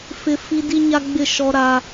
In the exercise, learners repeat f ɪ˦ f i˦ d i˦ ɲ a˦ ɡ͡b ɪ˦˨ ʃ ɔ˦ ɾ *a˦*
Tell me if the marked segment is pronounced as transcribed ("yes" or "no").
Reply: yes